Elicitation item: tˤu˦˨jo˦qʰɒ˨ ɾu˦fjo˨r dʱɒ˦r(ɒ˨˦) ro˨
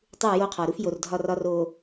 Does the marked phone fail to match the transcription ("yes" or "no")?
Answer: yes